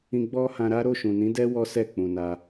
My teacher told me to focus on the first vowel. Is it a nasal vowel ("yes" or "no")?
yes